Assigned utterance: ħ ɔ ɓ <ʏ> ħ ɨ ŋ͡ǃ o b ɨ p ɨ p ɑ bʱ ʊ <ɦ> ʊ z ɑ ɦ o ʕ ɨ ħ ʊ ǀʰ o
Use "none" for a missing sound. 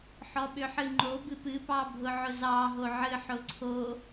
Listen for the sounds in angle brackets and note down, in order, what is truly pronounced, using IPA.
ʏ, ʕ

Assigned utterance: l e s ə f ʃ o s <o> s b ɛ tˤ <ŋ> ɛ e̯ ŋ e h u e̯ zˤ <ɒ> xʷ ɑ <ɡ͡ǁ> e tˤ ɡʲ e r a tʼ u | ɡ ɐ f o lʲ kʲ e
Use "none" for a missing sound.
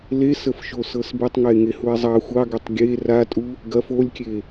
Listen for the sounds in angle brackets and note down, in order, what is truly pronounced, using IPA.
ɤ, ŋ, ɑ, ɡ

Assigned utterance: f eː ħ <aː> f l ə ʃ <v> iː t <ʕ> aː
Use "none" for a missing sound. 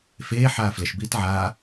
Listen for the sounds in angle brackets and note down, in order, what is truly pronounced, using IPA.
aː, b, ʕ

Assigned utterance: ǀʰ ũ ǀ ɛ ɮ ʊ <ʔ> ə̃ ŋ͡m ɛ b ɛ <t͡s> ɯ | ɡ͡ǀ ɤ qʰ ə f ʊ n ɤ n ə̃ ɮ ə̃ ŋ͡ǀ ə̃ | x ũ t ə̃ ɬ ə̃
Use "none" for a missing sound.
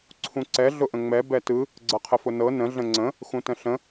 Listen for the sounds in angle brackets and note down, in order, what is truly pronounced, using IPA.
ʔ, t

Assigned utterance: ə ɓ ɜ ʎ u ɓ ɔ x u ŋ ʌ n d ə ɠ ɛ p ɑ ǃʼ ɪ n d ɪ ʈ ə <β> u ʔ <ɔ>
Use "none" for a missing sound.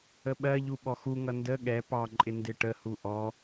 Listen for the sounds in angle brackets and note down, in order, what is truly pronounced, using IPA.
h, ɔ

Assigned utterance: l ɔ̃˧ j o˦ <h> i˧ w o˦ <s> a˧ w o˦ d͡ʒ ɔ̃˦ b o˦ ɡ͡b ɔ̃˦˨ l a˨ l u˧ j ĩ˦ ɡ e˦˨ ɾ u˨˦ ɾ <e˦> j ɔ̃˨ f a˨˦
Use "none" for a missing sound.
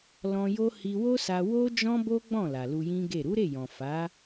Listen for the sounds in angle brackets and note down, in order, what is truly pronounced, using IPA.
h, s, e˦˨

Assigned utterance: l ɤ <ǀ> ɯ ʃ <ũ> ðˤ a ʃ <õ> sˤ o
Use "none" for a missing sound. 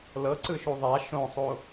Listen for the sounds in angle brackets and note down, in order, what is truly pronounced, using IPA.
ǀ, u, õ

